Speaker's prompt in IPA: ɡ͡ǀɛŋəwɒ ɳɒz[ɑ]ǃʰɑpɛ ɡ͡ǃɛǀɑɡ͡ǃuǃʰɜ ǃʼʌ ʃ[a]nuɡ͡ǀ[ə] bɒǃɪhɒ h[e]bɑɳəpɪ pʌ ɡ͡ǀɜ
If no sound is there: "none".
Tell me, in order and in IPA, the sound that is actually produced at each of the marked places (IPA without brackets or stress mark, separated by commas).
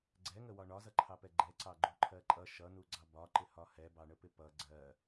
ʌ, ʌ, ɑ, ɛ